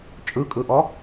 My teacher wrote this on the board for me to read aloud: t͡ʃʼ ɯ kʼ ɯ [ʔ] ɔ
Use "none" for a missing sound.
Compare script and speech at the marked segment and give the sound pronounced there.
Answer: ʔ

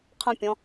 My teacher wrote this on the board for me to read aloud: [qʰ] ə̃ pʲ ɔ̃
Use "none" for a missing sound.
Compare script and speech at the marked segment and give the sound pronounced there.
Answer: qʰ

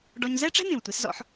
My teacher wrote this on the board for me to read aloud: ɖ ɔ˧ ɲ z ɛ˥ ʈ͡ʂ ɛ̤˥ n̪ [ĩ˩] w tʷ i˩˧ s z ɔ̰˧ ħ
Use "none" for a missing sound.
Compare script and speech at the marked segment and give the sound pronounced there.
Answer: ĩ˩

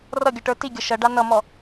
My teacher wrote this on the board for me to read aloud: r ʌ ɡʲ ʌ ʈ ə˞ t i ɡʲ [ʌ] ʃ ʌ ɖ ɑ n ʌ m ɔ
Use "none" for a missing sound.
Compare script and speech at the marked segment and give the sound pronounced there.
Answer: ʌ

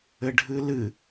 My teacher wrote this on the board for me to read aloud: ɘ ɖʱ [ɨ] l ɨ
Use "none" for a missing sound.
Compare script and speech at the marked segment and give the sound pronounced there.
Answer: ɨ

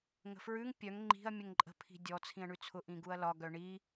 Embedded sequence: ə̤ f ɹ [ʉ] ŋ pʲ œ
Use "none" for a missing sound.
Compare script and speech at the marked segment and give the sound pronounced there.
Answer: ʉ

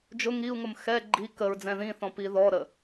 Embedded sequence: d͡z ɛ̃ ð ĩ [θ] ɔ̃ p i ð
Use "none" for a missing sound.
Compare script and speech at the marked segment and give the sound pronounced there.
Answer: θ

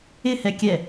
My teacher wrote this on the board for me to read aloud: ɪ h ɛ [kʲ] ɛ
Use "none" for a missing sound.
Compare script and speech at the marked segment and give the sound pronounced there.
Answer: kʲ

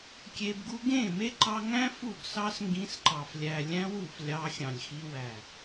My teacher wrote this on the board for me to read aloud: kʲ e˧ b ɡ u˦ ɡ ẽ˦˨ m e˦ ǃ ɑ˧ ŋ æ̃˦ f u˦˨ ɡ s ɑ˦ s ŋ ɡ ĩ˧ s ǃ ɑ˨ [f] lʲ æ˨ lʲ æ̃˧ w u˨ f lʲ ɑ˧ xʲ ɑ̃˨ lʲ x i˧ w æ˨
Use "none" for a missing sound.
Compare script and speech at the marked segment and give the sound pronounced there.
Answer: f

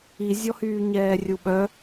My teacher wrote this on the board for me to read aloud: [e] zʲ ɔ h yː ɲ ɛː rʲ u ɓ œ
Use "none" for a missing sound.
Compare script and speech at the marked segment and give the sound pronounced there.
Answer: i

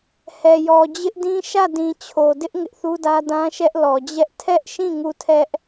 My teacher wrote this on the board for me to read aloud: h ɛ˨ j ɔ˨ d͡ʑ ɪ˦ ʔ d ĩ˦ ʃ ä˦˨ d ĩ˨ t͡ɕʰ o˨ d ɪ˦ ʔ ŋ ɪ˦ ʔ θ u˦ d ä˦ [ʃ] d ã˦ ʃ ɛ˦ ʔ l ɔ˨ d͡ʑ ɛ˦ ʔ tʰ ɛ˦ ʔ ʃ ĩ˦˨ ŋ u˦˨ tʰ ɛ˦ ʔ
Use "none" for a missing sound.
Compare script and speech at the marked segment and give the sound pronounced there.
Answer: none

